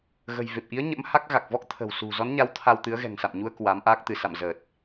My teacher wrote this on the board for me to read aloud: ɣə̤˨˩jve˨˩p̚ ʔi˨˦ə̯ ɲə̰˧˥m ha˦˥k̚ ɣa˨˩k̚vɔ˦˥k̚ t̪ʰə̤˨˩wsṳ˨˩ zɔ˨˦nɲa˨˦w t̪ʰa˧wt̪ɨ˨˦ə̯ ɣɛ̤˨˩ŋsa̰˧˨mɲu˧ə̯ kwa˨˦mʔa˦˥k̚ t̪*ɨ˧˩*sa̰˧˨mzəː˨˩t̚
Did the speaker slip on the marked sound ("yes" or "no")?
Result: no